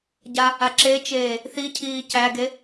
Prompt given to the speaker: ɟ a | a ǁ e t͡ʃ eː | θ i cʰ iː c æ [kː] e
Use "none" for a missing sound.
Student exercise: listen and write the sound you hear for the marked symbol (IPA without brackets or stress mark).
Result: ɡ